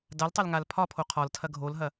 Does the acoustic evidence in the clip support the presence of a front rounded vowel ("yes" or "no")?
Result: no